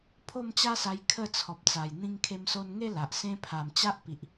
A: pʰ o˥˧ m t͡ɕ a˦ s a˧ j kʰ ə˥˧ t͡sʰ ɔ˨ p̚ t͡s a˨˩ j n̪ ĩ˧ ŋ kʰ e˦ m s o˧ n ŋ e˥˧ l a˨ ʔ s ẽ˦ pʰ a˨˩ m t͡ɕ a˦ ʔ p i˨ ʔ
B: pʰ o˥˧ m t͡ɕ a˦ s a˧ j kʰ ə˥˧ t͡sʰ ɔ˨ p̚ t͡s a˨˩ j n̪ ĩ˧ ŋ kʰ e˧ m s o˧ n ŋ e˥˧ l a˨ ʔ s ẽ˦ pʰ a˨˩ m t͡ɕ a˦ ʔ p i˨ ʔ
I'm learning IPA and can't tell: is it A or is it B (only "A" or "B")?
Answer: B